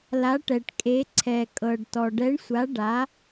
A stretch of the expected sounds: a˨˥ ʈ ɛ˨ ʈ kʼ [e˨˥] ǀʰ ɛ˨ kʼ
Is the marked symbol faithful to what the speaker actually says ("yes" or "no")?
yes